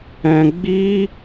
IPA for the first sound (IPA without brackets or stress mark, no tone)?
ɛ̃